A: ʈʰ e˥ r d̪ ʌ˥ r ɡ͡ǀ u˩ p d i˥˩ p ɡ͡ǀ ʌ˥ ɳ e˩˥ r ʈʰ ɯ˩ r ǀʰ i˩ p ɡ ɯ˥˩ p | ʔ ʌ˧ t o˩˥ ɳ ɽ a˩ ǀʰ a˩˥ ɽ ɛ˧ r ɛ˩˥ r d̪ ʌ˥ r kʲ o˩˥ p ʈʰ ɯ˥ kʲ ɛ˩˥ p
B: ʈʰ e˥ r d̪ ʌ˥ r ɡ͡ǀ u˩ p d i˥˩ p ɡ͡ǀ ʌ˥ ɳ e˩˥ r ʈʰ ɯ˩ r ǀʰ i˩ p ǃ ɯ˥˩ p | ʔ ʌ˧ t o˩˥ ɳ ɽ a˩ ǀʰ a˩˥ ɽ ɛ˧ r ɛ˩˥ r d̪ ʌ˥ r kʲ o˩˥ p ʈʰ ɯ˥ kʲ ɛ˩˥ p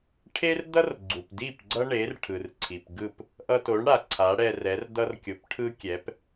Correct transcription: A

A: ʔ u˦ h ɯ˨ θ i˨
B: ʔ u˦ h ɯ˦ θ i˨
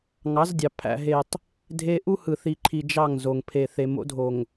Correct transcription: A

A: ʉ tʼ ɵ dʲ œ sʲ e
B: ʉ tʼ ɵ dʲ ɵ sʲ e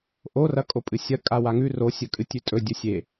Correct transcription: B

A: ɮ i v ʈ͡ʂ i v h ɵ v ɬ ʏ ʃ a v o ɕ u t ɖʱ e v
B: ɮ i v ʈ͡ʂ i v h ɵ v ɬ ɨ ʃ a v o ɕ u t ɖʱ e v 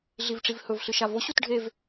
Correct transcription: B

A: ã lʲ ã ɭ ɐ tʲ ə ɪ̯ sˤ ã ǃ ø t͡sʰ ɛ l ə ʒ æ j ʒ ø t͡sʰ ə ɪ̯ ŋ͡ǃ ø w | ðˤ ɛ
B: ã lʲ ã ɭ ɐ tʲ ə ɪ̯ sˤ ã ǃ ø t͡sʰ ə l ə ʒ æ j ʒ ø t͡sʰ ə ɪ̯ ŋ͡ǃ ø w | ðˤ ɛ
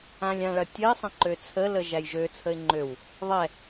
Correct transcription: B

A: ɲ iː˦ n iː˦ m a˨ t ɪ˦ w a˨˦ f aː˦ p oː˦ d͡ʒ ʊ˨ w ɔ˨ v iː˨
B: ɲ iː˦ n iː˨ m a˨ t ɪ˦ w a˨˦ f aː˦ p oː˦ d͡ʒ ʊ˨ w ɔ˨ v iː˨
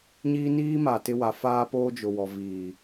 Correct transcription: A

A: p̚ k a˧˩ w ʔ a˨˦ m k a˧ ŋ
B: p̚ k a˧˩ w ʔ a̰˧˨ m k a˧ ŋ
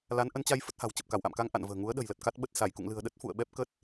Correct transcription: B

